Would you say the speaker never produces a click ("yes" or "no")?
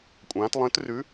yes